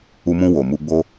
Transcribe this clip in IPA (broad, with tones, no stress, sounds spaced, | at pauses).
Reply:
u˧ m ũ˧ w o˨ m u˧ ɡ͡b o˦